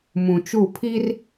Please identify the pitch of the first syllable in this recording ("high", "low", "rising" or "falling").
low